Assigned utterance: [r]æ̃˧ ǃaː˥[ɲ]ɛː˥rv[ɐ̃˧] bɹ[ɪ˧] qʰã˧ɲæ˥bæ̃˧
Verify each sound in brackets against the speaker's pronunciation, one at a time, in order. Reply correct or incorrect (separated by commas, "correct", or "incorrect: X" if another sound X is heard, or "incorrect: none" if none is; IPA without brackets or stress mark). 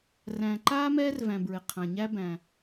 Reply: correct, incorrect: m, incorrect: æ̃˧, correct